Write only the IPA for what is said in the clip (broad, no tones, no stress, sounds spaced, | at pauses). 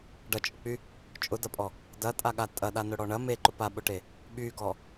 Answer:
ɖ ɐ t͡ʃʼ ʊ k͡p y | t͡ʃʼ ʊ d ɐ pʼ ɔ | d ɐ tʼ a ɠ a tʼ ɐ ɗ a n ʊ ɽ ɔ ɳ ɐ m e ǃ ʊ p a ɓ ʊ ʈ e | ɓ y ɡ ɔ